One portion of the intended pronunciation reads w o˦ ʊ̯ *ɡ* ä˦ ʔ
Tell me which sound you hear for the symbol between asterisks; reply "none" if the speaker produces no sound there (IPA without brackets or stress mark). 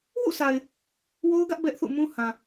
ɡ